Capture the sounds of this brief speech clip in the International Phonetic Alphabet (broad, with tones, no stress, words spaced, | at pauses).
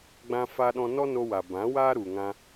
ɡ͡bã˧fa˧ɗɔ̃˧ nɔ˦no˧wa˨bã˨˦ waː˦ɾu˨ŋã˧